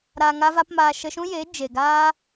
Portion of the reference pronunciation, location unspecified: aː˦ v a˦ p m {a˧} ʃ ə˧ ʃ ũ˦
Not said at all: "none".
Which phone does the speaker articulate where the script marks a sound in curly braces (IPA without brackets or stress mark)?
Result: aː˧